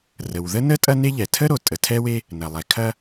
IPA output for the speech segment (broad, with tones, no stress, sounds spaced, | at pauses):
r ə˩ w ð ə˥ n ə˥ tʼ ɐ˥ n e˥ ʎ ɛ˩ tʰ ə˥ ɾ o˩ tʼ ə˩ tʰ ɛ˥ w e˥ | n ɐ˩ lˠ ɛ˩ kʰ ɐ˥